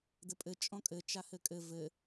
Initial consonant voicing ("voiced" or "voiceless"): voiced